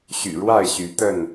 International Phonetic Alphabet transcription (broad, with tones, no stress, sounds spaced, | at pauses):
ɕ y̰˨˩ ɻ w a˥˨ ɪ̯ ɕ y˨˦ t̪ ə˥˨ n